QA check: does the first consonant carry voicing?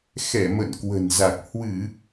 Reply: no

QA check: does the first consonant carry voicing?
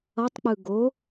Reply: no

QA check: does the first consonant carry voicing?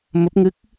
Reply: yes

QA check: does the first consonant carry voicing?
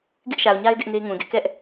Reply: yes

